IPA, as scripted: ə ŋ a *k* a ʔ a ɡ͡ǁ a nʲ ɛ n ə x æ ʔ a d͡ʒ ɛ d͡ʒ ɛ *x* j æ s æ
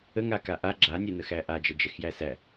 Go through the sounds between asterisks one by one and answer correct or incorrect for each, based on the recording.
correct, correct

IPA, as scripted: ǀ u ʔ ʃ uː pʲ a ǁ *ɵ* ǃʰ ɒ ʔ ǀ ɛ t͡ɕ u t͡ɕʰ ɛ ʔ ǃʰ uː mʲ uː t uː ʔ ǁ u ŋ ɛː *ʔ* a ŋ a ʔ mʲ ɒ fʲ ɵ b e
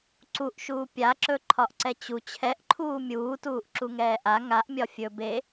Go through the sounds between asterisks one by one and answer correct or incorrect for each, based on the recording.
correct, correct

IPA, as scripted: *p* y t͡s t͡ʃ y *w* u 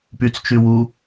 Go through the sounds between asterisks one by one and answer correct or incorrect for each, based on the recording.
correct, correct

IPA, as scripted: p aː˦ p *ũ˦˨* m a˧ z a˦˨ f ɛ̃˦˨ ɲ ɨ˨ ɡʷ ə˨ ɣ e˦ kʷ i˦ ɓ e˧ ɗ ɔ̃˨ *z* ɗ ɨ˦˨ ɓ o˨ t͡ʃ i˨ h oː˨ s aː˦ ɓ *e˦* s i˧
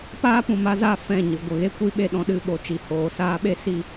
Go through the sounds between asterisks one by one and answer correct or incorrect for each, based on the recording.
incorrect: ũ˨, incorrect: none, correct

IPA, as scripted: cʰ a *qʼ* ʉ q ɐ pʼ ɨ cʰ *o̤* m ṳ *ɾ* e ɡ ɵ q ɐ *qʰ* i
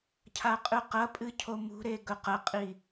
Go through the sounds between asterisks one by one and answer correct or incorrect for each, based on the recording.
correct, incorrect: o, correct, incorrect: qʼ

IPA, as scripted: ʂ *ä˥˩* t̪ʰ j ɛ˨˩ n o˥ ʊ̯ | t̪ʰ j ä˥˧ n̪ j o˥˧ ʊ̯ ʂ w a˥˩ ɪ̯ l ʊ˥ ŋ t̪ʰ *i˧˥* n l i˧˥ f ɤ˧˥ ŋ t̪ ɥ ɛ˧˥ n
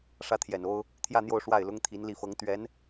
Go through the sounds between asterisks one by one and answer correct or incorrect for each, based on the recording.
correct, correct

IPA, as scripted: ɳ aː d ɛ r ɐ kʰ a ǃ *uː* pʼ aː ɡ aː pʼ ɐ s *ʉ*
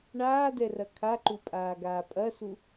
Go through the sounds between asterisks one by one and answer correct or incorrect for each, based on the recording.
incorrect: u, incorrect: u

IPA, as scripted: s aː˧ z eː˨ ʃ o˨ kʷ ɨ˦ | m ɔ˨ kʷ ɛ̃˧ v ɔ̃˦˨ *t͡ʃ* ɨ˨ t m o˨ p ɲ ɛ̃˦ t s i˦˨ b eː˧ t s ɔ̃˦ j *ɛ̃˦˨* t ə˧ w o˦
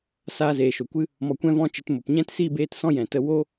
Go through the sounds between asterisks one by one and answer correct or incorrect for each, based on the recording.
correct, incorrect: ɛ̃˨

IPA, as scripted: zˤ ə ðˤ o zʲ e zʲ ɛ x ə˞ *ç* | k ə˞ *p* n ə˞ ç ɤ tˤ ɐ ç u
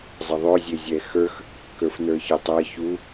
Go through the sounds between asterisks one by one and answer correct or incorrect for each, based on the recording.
incorrect: x, incorrect: f

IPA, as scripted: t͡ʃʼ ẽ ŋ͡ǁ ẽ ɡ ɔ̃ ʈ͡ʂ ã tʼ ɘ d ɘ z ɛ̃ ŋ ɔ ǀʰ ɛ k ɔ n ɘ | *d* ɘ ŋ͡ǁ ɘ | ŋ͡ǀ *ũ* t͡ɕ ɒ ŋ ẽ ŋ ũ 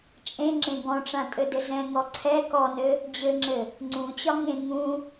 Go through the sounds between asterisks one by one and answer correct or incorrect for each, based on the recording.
incorrect: d͡ʑ, correct

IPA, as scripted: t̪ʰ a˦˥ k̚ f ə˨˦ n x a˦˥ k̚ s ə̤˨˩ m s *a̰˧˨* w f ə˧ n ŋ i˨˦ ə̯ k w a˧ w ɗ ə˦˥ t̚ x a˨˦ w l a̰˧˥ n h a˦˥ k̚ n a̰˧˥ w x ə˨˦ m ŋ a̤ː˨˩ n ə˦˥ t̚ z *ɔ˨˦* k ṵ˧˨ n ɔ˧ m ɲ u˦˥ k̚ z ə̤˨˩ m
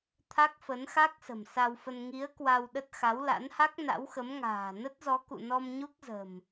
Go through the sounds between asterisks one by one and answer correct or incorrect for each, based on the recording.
incorrect: a˧, correct

